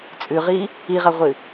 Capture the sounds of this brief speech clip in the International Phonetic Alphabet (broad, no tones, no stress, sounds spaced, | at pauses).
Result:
t͡sʼ ʉ ʁ i | i ʁ ɐ ʁʷ ɨ